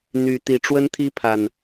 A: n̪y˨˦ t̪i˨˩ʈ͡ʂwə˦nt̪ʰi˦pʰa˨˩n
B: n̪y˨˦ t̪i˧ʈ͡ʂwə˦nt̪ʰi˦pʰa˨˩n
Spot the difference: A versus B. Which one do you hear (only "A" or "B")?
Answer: A